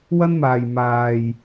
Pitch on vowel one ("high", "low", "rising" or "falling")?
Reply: high